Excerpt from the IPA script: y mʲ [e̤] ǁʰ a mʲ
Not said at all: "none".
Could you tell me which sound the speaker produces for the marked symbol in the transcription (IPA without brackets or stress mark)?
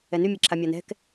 e